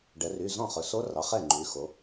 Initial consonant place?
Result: retroflex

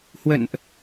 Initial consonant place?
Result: glottal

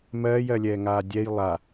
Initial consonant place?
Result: labial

